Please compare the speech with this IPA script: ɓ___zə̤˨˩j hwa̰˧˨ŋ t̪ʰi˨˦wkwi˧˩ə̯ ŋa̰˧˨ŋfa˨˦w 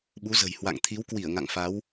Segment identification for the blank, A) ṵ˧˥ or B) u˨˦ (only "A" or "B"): B